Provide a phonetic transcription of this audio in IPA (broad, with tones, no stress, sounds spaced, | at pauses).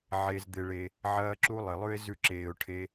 ʕ e˧ z d̪ ɪ˧ ɭ e˧ | ʕ ɐː˧ ǁ u˧ lˠ ɪ˨ lˠ ʉ˦ ɪ̯ z ʉ˦˨ ǁ eː˨ ʊ̯ ʈʰ e˧